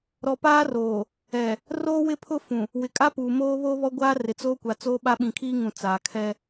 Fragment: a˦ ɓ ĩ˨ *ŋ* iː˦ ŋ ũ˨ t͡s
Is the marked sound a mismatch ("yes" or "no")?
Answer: yes